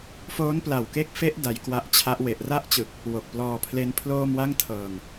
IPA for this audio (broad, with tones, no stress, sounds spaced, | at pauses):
f oː˦˥ n p l a˨˩ w k e˦˥ k̚ f e˦˥ ʔ d a˧ j k w a˦˥ ʔ t͡ɕʰ a˦˥ ʔ w e˨˩ ʔ r a˥˩ ʔ t͡ɕ ɯ˨˩ k̚ | w o˨˩ k̚ p l ɔː˧ pʰ l e˦˥ n pʰ l oː˥˩ m w a˥˩ ŋ tʰ ɤː˨˩ ŋ